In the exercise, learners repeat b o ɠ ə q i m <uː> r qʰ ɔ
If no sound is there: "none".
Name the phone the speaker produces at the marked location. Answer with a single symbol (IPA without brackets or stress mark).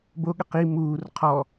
uː